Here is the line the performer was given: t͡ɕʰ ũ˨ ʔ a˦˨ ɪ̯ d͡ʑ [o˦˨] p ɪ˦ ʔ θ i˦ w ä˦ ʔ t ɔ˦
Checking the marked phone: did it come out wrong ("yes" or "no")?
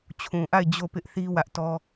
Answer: no